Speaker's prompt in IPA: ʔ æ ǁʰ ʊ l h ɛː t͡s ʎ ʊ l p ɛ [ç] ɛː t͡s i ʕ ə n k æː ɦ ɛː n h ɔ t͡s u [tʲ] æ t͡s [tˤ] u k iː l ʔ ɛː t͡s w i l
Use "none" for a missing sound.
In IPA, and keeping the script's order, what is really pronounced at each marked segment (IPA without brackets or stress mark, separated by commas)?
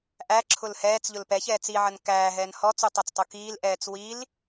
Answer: ç, tˤ, tˤ